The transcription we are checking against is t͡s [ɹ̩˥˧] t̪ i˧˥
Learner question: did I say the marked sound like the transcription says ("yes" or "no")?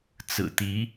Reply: no